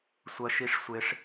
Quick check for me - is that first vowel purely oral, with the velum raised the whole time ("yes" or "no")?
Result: yes